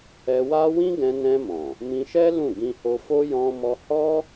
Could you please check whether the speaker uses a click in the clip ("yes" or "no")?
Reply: no